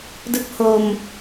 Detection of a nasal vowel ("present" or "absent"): absent